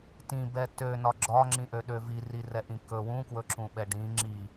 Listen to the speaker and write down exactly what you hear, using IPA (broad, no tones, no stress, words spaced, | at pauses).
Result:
tĩbɛ tønɒ ɡ͡ǁɒŋ͡ǁĩʔøɗø virirɛʔĩ kɵ wũkwɵǁũɓɛ ɖĩ ŋ͡ǁi